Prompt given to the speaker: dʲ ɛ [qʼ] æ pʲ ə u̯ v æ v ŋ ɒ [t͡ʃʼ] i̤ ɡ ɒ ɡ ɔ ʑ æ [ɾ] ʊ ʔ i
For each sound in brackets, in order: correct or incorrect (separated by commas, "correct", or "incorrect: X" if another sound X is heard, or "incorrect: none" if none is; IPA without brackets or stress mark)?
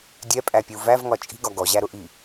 incorrect: pʼ, correct, correct